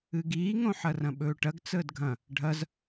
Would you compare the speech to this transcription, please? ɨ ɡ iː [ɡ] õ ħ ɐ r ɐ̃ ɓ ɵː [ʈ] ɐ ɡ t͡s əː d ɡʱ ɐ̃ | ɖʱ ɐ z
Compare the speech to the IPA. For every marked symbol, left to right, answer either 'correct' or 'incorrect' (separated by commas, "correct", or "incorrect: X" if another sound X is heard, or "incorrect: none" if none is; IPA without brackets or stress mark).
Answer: incorrect: ŋ, correct